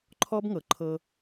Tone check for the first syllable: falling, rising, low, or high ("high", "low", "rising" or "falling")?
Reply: high